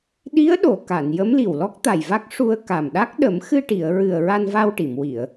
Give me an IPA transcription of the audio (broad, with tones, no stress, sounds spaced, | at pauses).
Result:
ɗ i˧˥ ə̯ ɗ o˨˩˨ k a˨˩˨ n j ə˧˥ m l i˨˩ w l ɔ˦˥ k̚ t̪ a˨˩ j v a˦˥ k̚ ʂ u˧ ə̯ k a˨˩ m ɗ a˦˥ k̚ ɗ ə˨˩˦ m x ɨ˧ ʈ i˨˩˨ ə̯ ɹ ɨ˨˩ ə̯ ɹ a˧ n v a˧ w ʈ i˨˩˨ m w i˨˩˨ ə̯